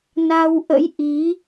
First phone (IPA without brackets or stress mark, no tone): n